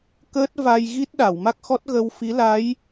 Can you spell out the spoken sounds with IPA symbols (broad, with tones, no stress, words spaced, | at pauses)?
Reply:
kəː˦˥t̚va˧jɣi˦˥t̚ɗa˨˩˨w ma˦˥k̚xɔ˦˥t̚ ɣə˧w fi˧˥la˧˥j